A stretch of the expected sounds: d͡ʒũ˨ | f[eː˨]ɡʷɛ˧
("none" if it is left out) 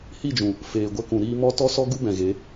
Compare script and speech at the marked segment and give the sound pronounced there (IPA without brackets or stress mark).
eː˨